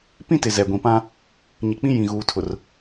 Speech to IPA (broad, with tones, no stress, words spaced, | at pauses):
pĩ˦tɪ˨ zɛ˨ɡʷĩ˨pã˦ | ɲi˨k͡pĩ˦ jĩ˨ɣuː˨ tʰʊ˨r